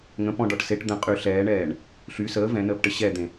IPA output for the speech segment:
ŋ ə̃ p ɔ̃ ɖ ɔ ʈ s e ʈ d̪ ə̃ qʼ y ɬ ɛː ɳ ɛː ɳ | ɬ y s əː v ɛ̃ n əː p ʈ ə ɕ ɛ d̪ ẽ

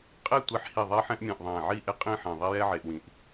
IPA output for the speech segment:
qʼ e˥˧ tʷ e˧ ħ h i˧˩ ðˤ ɛ˥ ħ ɛ̃˥ ʔ mʲ ẽ˧˩ ʔ ðˤ æ̃˧˩ ʕ i˥˧ ʔ e˥ qʼ ĩ˥˧ ħ ɛ̃˧˩ ðˤ i˥ j ɛ˥ ʕ e˧ ʔ w ĩ˧˩ ʔ

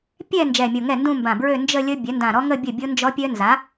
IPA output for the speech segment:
pʲ ɛ˥˧ n d͡ʒ ɛ˧˩ mʲ o˧˩ ŋ ɛ˥˩ n d ũ˥˧ m b ã˧˩ b ɹ ø˥˧ n d͡ʒ ə˥˧ lʲ ə˦˥ bʲ œ˩˥ n d ã˧˩ ɾ ɔ˦˥ ŋ ə˥˧ bʲ ə˥˩ bʲ o˦˥ n d͡ʒ ɔ˦˥ pʲ œ˦˥ n z a˩˥

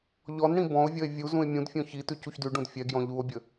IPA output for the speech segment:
ʎ ɔ n ɽ ĩ b ɔ̃ o̯ vʲ ʌ e̯ vʲ u z ũ e̯ mʲ ũ d fʲ ɔ̃ ç i t ʉ c u ç d ʉ ɖ ũ d fʲ ɛ ɡ j ɔ̃ ʎ u o̯ bʲ ə

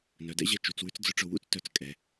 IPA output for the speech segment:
n œ˩˧ d ɛ̰˥ ʑ ɛ˧ t͡ʃ u˩˧ t͡s w ʉ˥ t͡s d͡z ʊ˧ ʈ͡ʂ ʊ˧˩ w ṵ˥˧ t͡s t œ˩˧ t͡s kʼ ɛ˩˧

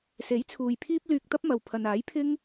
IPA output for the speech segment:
s e˨˥ j t͡sʰ uː˨ j pʰ iː˥ p̚ l yː˧ k̚ t̪ ɐ˥ p̚ m ɐ˨ w pʰ ɐ˨ n aː˨˥ j pʰ ɪ˥ ŋ

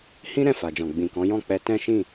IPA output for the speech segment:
h ĩ˦ ɾ ɛ̃˦˨ f a˨ d͡ʒ ɔ̃˨ ɡ͡b ĩ˨ k ɔ̃˨˦ j ɔ̃˦˨ k͡p ɛ˧ t ɛ̃˦ ʃ ĩ˦˨

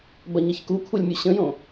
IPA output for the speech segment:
b ɐ ɲ ɐ ç k u kʷʰ ɐ lʲ mʲ u ɕ ə̃ j õ

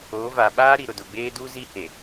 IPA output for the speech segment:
oː˨˦ v a˨ ɓ aː˦ ɾ i˨ ɾ ʊ˨ d ʊ˨ ɡ͡b eː˦ d u˦ z i˦ h e˨

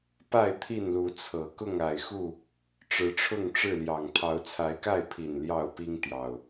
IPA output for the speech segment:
p a˥˨ ɪ̯ t̪ʰ i˥˨ n l u˨˦ t͡sʰ ɤ˨˩ k ʊ˥˨ ŋ a˨˩ ɪ̯ x u˥˨ | ʈ͡ʂ ɻ̩˨˦ ʈ͡ʂʰ ʊ˥˨ ŋ ʈ͡ʂ ɻ̩˥˨ l j ɑ˨˩ ŋ t̪ʰ ɑ˨˦ ʊ̯ t͡sʰ a˨˦ ɪ̯ k a˥˨ ɪ̯ pʰ i˨˩ n l j ɑ˥˨ ʊ̯ p i˦ ŋ t̪ j ɑ˨˩ ʊ̯

